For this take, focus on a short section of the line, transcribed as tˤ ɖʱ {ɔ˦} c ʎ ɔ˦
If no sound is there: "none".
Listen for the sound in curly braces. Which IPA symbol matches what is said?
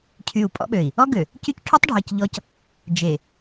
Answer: ɔ˨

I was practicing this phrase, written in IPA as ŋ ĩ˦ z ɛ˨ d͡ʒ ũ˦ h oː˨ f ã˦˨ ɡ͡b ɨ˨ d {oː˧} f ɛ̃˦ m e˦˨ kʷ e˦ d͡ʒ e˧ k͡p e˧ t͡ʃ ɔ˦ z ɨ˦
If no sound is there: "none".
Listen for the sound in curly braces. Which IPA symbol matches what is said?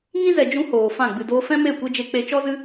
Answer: oː˧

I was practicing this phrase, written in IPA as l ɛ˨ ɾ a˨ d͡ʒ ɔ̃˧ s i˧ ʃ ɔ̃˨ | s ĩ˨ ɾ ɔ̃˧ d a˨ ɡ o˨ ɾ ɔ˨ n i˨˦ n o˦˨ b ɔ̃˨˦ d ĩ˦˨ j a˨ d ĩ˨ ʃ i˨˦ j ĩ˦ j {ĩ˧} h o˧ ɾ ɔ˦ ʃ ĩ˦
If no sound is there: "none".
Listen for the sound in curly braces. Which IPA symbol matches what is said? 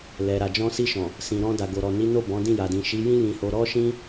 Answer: ĩ˧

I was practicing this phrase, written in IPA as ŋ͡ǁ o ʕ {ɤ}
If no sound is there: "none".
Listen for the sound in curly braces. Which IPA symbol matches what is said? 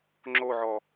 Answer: ɔ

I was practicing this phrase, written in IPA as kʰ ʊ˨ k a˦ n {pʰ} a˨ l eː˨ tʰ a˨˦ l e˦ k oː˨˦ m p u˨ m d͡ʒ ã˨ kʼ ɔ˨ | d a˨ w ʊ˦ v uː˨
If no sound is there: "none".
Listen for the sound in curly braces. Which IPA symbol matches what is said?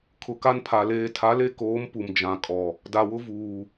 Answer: pʰ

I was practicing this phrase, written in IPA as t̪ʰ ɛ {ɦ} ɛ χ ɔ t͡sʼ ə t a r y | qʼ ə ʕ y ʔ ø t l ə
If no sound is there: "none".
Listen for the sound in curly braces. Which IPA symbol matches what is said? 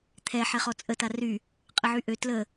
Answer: ħ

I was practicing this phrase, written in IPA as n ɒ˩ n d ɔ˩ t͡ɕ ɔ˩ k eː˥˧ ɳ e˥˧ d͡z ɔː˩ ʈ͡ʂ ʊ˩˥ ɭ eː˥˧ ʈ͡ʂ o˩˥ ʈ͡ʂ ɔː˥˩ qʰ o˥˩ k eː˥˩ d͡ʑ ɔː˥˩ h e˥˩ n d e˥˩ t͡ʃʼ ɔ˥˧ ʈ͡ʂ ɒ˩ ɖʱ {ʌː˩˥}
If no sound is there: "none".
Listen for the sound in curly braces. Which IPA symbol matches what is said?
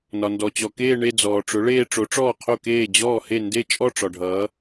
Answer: ʌː˩˥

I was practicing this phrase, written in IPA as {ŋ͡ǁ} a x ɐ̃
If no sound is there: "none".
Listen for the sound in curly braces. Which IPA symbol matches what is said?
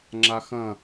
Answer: ŋ͡ǁ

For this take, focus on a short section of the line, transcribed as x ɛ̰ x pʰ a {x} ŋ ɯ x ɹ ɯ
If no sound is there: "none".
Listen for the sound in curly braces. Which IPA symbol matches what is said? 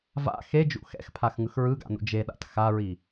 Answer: x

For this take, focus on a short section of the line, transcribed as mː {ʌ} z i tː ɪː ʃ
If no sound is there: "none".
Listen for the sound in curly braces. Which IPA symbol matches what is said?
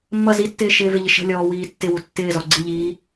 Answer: ʌ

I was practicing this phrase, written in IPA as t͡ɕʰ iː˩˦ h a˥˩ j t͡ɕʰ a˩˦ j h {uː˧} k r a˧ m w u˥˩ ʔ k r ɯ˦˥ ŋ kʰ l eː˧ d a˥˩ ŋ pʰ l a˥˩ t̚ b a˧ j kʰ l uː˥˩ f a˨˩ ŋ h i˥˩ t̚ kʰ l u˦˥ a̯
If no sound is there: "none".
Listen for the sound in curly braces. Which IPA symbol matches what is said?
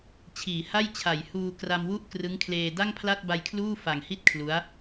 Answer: uː˧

